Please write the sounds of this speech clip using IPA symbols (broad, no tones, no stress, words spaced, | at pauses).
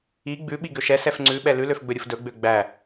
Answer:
i ɡ͡bʉɓi ɡøʃɛsɛf ŋ͡ǀʉɓɛ lʉløfɡ͡bɵɾʲuf dɵɡ͡bø ɡ͡bæ